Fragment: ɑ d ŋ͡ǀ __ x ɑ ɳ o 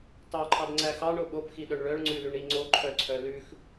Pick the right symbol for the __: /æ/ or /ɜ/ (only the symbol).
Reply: æ